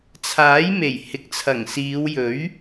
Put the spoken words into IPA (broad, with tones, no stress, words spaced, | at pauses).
t͡sʰaː˨˥jme˨˩j hɪ˨k̚t͡sʰɐ˨˩ŋsiː˨˧wjɵ˨˥ɥ